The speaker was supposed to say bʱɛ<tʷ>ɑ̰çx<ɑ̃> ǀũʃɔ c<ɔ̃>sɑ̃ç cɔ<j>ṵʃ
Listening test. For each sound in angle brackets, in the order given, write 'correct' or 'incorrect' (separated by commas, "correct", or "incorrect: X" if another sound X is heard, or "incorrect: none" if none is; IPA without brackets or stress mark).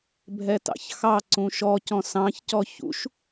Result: incorrect: t, incorrect: ɑ, correct, incorrect: ç